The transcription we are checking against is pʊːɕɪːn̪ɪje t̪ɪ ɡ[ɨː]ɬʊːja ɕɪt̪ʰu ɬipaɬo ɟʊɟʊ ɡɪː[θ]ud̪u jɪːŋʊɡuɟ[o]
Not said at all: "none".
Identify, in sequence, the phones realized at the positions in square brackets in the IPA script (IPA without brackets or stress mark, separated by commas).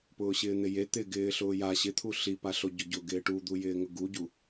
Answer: ɪː, ʈ, u